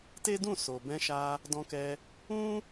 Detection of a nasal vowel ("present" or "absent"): present